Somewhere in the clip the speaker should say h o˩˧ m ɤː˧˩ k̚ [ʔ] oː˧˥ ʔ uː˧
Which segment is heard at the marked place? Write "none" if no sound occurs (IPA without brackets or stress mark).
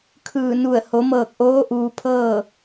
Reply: ʔ